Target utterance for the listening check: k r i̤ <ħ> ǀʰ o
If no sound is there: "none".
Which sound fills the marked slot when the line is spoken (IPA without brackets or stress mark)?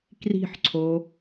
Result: ħ